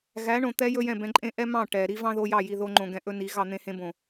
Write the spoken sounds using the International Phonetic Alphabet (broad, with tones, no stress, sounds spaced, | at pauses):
ɣ æ˨˦ ɳ õ˨ t̪ ɛ˦ j ɵ˦ j ɛ̃˦˨ b ɛ̃˧ ǃʼ ẽ˦ ʔ ɛ˦ m ɑ̃˦˨ ʈ ɛ˨ ɾ i˦ v ɑ̃˦ ð o˧ j ɑ˦˨ j i˧ ð o˦ ŋ͡ǃ õ˧ ɡ ɛ̃˧ ʔ ɵ˦ n i˨˦ ɣ ɑ˧ n̪ ẽ˧ h ẽ˧ b õ˨